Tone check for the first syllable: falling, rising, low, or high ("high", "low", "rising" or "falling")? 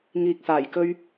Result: low